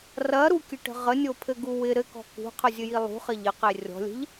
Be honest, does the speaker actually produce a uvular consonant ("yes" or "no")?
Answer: yes